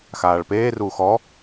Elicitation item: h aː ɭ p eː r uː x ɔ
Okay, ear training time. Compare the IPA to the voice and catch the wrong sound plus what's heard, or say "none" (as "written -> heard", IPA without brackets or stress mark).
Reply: h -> x